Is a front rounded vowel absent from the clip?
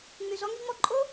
no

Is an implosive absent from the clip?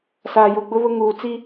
yes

